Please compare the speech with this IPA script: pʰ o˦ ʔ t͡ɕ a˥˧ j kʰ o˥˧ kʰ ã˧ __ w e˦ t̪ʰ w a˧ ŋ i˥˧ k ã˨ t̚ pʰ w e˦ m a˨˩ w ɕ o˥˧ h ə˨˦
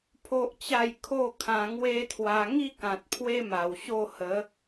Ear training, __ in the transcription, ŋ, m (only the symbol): ŋ